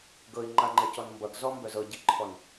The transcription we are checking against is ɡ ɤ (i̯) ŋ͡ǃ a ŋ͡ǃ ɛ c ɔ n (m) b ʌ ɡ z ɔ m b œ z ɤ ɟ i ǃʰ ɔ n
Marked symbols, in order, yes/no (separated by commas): yes, yes